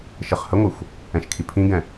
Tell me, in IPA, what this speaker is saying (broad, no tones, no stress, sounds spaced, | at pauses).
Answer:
ʃ ə χ h ə ŋʷ ɨ xʷ | ɛ̃ ʃ kʰ i pʰ ĩ ɡ ɛ̃